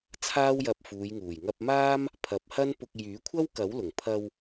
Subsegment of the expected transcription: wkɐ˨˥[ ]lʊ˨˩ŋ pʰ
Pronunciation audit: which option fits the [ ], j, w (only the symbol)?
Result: w